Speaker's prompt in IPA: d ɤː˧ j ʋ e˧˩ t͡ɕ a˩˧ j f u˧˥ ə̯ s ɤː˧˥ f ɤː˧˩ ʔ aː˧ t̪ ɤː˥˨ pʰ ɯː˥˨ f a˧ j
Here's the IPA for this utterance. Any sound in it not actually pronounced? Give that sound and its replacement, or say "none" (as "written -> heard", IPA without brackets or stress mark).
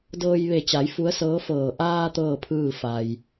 none